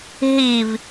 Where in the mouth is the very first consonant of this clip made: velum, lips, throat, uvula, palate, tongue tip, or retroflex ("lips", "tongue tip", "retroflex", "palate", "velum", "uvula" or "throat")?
throat